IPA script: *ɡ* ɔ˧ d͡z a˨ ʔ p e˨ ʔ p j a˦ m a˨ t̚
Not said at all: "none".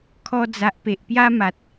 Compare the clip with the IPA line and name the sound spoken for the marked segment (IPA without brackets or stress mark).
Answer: kʰ